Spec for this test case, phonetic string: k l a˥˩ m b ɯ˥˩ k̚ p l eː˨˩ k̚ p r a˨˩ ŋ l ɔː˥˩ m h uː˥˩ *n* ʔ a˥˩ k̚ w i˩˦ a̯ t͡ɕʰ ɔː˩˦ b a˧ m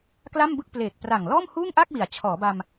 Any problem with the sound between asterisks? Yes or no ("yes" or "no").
yes